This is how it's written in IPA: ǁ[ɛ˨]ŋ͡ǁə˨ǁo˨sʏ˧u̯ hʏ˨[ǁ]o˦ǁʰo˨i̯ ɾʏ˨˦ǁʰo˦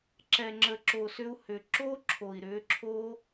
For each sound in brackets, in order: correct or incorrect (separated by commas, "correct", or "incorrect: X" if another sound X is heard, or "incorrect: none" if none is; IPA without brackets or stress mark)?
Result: correct, correct